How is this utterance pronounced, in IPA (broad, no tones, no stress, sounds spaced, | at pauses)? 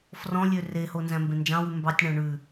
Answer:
f r ɔ̃ lʲ ø r e h o n z æ̃ m b ẽ n d͡ʒ ɑ̃ w ʉ m b ɑ tʲ ɳ ɑ̃ ɳ ʉ